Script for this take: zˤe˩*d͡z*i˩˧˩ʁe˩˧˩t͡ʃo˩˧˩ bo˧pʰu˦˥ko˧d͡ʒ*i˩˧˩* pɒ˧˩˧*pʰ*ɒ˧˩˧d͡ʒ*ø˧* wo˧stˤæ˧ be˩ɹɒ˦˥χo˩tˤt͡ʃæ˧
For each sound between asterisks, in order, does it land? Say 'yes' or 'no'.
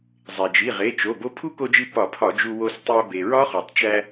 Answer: no, no, yes, no

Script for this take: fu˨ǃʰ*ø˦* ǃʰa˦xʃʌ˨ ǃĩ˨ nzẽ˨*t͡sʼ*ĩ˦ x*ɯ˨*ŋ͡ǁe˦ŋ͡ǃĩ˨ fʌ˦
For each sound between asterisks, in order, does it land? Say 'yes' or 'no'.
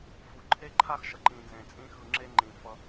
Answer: no, yes, yes

